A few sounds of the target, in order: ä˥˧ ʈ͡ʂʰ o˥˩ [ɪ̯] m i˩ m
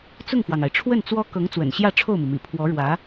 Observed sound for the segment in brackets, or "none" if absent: ʊ̯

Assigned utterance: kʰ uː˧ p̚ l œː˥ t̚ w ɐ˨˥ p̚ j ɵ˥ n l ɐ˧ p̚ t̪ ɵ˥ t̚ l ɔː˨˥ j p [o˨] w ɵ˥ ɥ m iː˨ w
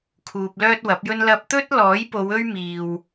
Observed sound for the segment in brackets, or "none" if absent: o˨˧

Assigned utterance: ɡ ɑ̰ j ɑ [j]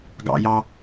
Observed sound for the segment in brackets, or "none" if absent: none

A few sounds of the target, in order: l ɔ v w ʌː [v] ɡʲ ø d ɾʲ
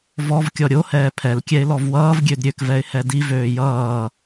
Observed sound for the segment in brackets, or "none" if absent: v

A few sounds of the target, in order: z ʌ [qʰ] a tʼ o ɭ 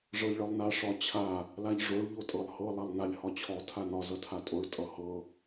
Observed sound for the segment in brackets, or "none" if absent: tʰ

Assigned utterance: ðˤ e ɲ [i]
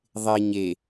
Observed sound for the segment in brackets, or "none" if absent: e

